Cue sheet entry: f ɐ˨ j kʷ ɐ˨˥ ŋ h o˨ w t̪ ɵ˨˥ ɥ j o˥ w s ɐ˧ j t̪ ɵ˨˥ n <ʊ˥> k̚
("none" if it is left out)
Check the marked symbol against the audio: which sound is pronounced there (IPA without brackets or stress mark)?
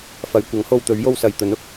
ʊ˨